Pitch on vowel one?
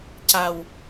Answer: low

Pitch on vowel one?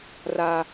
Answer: high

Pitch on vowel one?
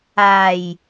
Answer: low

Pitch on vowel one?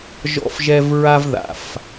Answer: high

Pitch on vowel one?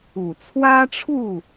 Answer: low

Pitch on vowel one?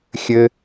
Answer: high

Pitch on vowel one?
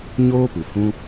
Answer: high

